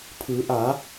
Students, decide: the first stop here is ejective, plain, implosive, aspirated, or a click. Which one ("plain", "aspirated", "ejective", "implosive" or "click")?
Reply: aspirated